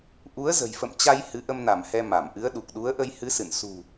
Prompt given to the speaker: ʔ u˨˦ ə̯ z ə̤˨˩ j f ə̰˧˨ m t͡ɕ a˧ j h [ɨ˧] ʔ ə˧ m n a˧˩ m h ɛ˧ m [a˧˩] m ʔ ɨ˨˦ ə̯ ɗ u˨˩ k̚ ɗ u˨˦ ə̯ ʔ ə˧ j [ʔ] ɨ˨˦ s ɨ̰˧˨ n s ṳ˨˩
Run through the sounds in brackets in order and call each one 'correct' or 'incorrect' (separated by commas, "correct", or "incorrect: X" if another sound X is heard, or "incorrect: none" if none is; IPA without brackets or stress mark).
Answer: incorrect: ɨ˨˦, correct, incorrect: h